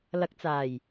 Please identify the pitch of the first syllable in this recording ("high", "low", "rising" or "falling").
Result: rising